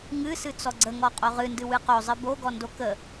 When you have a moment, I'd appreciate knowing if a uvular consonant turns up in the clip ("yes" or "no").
yes